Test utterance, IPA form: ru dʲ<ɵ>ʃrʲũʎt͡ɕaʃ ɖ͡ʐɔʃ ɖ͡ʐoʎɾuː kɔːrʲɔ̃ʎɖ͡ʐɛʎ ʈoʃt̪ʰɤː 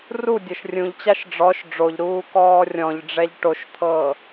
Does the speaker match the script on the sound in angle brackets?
no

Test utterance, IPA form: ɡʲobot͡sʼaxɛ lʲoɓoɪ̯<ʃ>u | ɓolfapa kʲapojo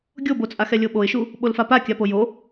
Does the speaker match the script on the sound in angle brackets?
yes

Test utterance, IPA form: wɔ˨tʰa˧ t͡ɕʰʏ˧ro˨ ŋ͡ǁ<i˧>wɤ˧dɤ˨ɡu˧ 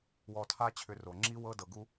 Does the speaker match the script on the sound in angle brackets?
yes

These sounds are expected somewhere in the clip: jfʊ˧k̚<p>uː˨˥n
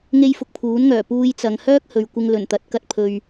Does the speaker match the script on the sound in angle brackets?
no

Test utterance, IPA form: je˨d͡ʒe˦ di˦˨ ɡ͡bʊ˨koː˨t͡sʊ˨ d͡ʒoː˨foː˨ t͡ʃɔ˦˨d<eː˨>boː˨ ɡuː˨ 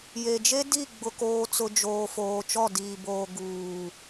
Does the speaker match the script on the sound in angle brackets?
no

